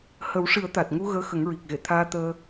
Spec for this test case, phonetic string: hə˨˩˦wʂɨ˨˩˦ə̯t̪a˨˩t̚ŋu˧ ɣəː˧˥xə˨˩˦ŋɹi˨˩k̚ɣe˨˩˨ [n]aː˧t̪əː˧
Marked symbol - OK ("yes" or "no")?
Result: no